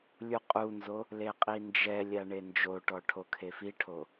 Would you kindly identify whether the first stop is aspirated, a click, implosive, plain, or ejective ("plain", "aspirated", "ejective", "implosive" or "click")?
ejective